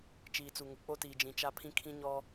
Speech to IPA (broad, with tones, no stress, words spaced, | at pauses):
t͡ʃiː˨t͡su˨ ŋʊ˨ k͡po˦tiː˨ d͡ʒĩ˨t͡ʃa˦pʰĩ˦ kʰĩ˦ɲɔ˦